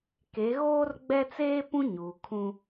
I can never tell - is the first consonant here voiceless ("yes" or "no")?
yes